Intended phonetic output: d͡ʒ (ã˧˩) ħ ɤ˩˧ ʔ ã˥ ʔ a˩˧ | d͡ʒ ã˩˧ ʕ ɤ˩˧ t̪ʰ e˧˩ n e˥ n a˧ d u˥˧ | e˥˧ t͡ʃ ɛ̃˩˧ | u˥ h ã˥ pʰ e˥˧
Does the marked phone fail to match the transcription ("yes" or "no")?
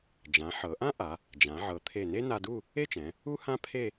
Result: yes